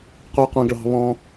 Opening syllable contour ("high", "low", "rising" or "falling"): low